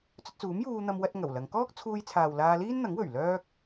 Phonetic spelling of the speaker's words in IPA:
t͡sɵ˧t̚t͡suː˨˥mjuː˧n̪ɐ˧m wɐ˥t̚ŋɐ˨˩wlɐ˨˧ŋ kɔː˥k̚t͡sʰuː˧jt͡sʰaː˨w laː˧liː˥nn̪ɐ˨˥ŋwɵ˨˩ɥ lœː˥k̚

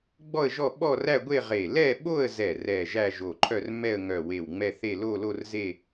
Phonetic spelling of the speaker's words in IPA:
ɡ͡bɔ˥˧ə̯ʒɔ˥˧ ɓɔ˥˧ræ˥˧ɡʷe˥˧ʁe˧˩ lɛ˥˧ɓo˥˧ə̯zɛ˧˩ rɛ˧˩ ʒæ˥˧ʒo˧˩ǃʰœ˥˧r mɛ˥˧ə̯ŋœ˧˩ we˧˩wŋ͡mɛ˥˧θe˥˧ lo˥˧lo˥˧rze˥˧

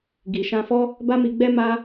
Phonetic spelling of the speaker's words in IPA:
ɡi˨ʃã˧fɔ˦ | ba˦mi˧ɡ͡bɛ˦ ma˦

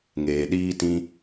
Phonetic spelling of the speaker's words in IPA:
ŋeː˨ɗiː˦tĩ˦

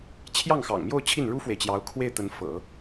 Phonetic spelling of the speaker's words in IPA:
t͡ɕʰjɑ˥˩ŋxɑ̰˨˩ŋmjo˥˧ʊ̯ t͡ɕʰi˥˩nɻu˥fwe˨ɪ̯t͡ɕjɑ˧˥ʊ̯ kʰwe˥˩ɪ̯ t̪ə˧˥nfɤ̰˨˩˦

